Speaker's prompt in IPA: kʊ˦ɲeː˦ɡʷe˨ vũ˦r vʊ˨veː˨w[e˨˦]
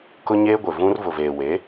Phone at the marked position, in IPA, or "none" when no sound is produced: e˨˦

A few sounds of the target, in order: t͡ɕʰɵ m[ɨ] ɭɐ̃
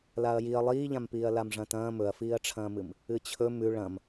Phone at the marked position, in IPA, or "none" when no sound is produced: ʉ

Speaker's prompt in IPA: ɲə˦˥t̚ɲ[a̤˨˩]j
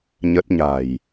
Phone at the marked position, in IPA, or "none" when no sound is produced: a̤˨˩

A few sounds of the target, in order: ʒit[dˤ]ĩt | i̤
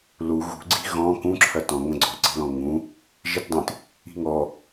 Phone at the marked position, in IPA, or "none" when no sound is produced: dˤ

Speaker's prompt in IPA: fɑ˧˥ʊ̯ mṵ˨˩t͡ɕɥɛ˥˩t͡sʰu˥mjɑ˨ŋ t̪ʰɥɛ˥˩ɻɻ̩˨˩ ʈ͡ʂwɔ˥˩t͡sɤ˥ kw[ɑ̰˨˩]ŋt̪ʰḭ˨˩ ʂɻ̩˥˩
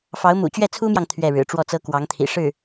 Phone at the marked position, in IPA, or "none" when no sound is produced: ɑ˧˥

